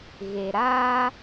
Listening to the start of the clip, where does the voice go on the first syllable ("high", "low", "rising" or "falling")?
low